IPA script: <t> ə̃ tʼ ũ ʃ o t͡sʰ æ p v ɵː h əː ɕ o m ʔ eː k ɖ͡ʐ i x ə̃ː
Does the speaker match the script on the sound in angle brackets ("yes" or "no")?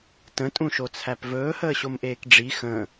yes